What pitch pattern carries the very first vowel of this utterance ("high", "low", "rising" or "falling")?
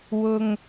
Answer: high